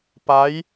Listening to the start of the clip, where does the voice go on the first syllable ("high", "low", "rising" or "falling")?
rising